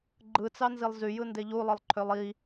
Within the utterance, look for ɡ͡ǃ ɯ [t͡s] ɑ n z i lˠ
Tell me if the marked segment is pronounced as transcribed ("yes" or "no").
yes